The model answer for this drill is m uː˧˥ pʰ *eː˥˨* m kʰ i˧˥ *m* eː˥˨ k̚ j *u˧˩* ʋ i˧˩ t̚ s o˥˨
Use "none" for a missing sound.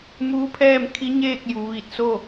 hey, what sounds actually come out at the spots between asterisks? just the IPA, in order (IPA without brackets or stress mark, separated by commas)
ɛː˥˨, ɲ, u˩˧